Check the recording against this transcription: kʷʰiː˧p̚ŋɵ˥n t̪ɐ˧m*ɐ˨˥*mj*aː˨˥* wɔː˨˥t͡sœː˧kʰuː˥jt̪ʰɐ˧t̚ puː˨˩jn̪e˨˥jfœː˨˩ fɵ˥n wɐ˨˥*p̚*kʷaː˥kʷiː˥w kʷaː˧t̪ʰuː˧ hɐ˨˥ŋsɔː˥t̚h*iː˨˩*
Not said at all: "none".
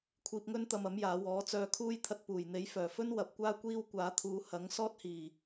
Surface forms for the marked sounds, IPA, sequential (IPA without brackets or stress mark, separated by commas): ɐ˨˥, aː˨˧, p̚, iː˨˩